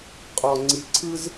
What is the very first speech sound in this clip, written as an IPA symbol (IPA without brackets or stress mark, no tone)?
qʼ